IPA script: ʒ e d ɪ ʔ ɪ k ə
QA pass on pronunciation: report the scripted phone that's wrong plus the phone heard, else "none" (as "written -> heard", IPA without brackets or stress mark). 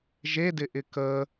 none